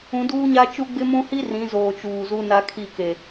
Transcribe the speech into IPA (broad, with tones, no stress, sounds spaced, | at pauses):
ũ˨˦ d uː˦ ɲ a˦ t͡ʃ u˦ ɡ͡b ɪ˦ m ũ˦ h i˦ r ĩ˨˦ z oː˨ t͡ʃ uː˨ z u˦ n a˦ kʰ i˦˨ k e˨